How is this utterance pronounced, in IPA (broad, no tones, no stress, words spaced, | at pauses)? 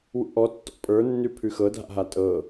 wṵʔɔtːɔ̰ pʼə˞nːʉ pʰʉxɤdʱa̰ɦa tʼɤ